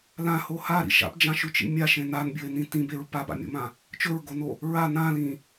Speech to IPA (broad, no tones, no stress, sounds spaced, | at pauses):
l ã h o h a ɾ ḭ ʃ a̰ p d͡ʒ ã ʃ ʉ t͡ʃ ḭ mʲ a ʃ ẽ n a n bʲ ɵ e̯ n ĩ t ĩ b e ɹ p a b a̰ mʲ o̰ m ã | t͡ʃ ɵ ɹ ɡ o n o | ɹ a n ã l ĩ